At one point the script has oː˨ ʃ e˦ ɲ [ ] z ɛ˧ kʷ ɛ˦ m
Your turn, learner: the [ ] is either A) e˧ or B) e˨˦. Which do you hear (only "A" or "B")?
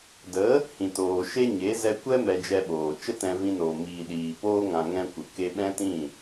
B